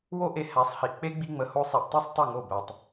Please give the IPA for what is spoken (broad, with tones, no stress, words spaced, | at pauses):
wo˦ʔe˧ hæ˨˦sˤhi˨ʔk͡pe˦ ɡ͡bi˦ŋ͡mə˧ho˦ sˤɛ˧ʔtˤɛ˦sˤ tˤɨ˦˨ŋo˦˨ bæ˧tˤ